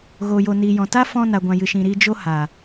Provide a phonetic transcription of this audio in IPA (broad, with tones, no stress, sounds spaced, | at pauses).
ɣ oː˨ j o˨ n iː˨ j ɔ̃˨ t a˦ f ɔ̃˧ n a˨ ɡʷ ã˨ j ɨ˨ ʃ ĩ˨ ɾ iː˧ d͡ʒ o˦ h a˨